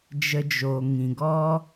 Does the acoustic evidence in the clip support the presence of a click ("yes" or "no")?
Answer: no